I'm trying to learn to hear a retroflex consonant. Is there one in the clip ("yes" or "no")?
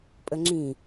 no